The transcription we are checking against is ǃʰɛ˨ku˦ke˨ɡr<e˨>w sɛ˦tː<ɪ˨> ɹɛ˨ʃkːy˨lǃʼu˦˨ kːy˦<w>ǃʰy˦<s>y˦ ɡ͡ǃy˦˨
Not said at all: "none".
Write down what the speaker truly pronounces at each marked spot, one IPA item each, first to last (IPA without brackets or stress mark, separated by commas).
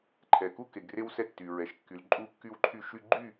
e˦, y˨, w, ʃ